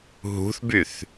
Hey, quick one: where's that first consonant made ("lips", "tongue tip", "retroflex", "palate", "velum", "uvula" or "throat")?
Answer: throat